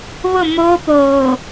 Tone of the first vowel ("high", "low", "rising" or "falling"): falling